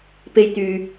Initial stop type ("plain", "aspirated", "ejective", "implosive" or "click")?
plain